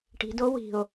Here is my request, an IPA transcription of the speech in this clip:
ʈi̤do wi̤o̯

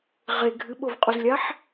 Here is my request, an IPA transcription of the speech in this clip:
ʁe ɡʱɨɓovqʼuzlʲaħ

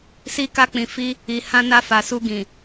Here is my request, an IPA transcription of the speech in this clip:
si˧ka˧k͡pĩ˨fi˧ | i˨ hã˧na˧fa˨su˧ ɡĩ˨

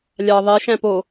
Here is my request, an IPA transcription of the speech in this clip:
lʲɑ ðˤe ʃæ̃po

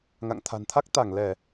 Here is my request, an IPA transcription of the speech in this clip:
ŋa̰˧˨ŋt̪ʰa̤˨˩nt̪ʰa˦˥k̚t̪a˧˩ŋ lɛ˧˩˨

